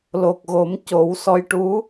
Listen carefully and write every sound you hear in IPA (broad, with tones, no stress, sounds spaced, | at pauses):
l o˨˩ k̚ ɣ o˨˩˦ m c o˨˩˦ w s ɔ˧˥ j ʈ u˧˥